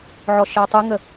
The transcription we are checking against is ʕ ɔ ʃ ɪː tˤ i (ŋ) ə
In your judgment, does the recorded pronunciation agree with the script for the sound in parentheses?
yes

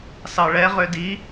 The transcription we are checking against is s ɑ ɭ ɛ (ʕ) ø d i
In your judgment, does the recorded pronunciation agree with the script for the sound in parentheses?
no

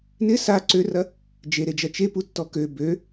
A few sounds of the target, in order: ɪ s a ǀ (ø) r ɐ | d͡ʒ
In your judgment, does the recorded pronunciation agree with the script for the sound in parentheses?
yes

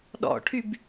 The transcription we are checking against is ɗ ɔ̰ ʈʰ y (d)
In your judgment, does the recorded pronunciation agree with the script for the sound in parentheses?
no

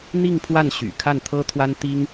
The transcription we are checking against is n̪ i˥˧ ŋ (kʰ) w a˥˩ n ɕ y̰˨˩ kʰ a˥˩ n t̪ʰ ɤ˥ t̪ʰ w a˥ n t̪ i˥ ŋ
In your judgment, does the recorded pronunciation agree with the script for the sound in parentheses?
no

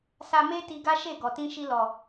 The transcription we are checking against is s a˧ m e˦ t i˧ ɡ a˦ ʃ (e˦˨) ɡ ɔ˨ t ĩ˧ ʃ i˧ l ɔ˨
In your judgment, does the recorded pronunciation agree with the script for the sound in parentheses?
yes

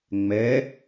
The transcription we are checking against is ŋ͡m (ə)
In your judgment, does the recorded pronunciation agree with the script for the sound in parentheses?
no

